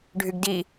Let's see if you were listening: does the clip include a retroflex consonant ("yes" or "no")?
yes